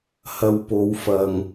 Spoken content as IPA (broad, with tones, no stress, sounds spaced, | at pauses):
h ɐ˨ w p o˨˧ w f ɐ˨ ŋ